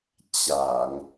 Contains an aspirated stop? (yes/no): no